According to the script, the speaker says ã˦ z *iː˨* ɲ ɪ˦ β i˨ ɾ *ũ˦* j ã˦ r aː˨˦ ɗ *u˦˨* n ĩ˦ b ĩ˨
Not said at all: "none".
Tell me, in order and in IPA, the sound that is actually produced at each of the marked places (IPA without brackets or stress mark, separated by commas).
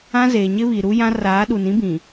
eː˨, u˦, u˨